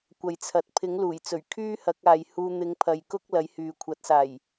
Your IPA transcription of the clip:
kʷ ɐ˨ j t͡sʰ ɐ˨ t̚ pʰ ɪ˨˥ ŋ l uː˨˩ j t͡s ɵ˨˩ ɥ kʰ yː˥ h ɐ˨˥ k̚ aː˨ j h uː˧ n̪ ɪ˧ ŋ pʰ ɐ˨ j k ʊ˥ k̚ l ɐ˨˥ j h yː˨ kʷʰ ɐ˨˥ t̚ s aː˨˩ j

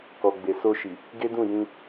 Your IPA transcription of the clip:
k ɔ˨ ɡ͡b e˨ s o˧ ʃ i˨ | ɡ e˦ d ũ˦˨ j ĩ˧

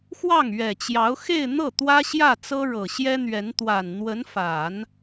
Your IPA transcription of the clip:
x w ɑ˥˩ ŋ ɥ ɛ˨˩ t͡ɕ j ɑ˧˥ ʊ̯ x e˥˧ ɪ̯ n̪ ɤ˥˩ t̪ w ä˥ ɕ j ä˥˩ t͡s ɤ˥ ɻ ɤ˨˩ ɕ j ɛ˥ n̪ ɥ ɛ˧˥ n t̪ w a˨˩ n n̪ w ə˧˥ n f a˨˩˦ n

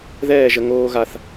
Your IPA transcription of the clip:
ð ɛː˥˧ ʒ ə˧ ŋ oː˥ ɣ a˥˧ θ

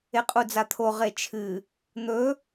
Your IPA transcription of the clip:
e qʼ u d͡z a t̪ʰ o ʁ e t͡ʃʰ ɨ | n̪ ɵ

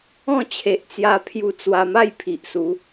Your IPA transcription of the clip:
ɔ̃˥˧ t͡ɕʰ e˨ ʔ t͡s j a˧ pʰ j u˧ t͡s w a˧ m a˥˧ j pʰ i˨ ʔ s u˨˦

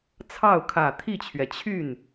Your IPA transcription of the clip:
t͡sʰ ɑ˥˩ ʊ̯ kʰ ä˨˩ t̪ʰ i˥˩ t͡ɕʰ ɥ ɛ˩ t͡ɕʰ y˥˩ n

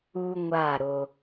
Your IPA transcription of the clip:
u˦ ŋʷ a˦˨ ɾ o˧

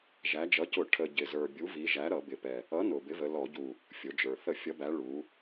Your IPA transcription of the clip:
ʒ æ˩˧ d͡ʒ ʌ˩˥ c ʊ˧˩˧ ʈʰ ə˨˩ ɟ ɪ˨˩ z ə˞˨˩ bʲ u˩˥ v i˩˧ ʒ æ˩˥ ɾ ʌ˧˩˧ b ɪ˨˩ p ɛ˨˩ | ʌ˩˥ n ʊ˨˩ b ɪ˩˥ v ə˩˧ l ɔ˧˩˧ ɟ u˨˩ | fʲ ʊ˩˧ d͡ʒ ə˞˨˩ θ ə˧˩˧ fʲ ʌ˩˧ b æ˩˧ ɭ u˩˧

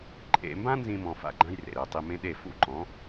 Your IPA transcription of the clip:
ǃʼ ḛ˧ m b ã˥ n z ĩ˥ m ɔ̃˧ f a̰˥˩ ɡ͡ǃ ã˥ j r ḛ˩ ɾ ɯ˩ ə̯ tˤ i˧ m ẽ˥ ɗ e˥˩ f ṵ˥˩ ǃ ɔ̃˩˥

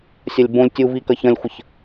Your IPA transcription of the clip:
sʲ ɐ lʲ b õ lʲ tʲ u v i k ɐ ç ɐ̃ lʲ xʷ ə ç

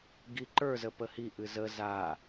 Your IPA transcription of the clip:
ɡ i ǃ ə˞ z ə p ə h i ʔ ɨ z ə z a

